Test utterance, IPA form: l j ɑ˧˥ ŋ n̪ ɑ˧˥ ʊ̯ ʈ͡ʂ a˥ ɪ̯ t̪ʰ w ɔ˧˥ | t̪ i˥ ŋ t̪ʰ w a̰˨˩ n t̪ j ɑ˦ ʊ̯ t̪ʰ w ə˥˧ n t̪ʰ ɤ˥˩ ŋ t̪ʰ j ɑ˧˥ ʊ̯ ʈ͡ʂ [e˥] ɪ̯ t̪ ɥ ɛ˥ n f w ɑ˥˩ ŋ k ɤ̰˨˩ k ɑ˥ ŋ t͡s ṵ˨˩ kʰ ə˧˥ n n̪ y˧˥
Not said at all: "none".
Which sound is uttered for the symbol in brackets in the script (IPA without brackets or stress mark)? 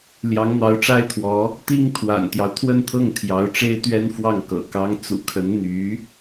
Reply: e˥